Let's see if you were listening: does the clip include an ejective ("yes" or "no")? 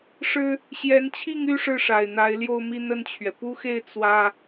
no